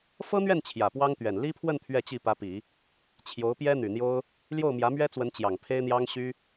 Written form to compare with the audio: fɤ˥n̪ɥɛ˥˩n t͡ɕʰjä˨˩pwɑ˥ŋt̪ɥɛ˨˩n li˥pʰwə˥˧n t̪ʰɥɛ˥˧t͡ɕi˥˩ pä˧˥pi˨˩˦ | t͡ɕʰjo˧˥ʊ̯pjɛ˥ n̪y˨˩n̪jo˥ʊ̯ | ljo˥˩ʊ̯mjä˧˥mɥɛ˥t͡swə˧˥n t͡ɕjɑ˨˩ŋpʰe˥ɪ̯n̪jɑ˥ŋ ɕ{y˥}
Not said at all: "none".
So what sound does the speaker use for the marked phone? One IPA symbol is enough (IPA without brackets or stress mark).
y˥